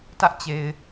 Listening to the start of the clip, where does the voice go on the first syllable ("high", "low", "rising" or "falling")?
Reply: high